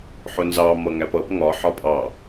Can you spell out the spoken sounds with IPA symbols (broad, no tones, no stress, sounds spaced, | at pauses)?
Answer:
ħ ʊ n z ɑ m ʌ ŋ æ p ʌ p ŋ ɒ ħ ɒ pʼ ɑ